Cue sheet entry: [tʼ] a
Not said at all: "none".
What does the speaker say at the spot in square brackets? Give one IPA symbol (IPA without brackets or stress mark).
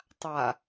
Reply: tˤ